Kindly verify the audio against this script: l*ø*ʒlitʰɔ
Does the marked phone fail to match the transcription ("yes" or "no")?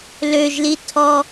no